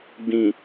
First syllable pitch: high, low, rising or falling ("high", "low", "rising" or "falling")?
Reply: low